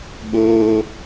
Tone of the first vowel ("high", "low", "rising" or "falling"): high